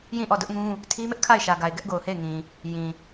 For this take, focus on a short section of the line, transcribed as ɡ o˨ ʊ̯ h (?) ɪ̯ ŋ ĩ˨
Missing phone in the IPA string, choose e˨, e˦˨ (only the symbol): e˦˨